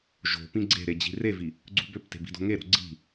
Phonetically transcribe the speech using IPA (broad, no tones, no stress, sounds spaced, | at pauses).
ʒ o̤ p ĩ ɡ͡ǀ e̤ ɾ e d͡ʑ i̤ r e v i | ɡ͡ǀ ṳ b ø p t e̤ b i̤ d o̤ ŋ e ɾ o̤ ɡ͡ǀ i̤